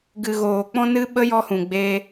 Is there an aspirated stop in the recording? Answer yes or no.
no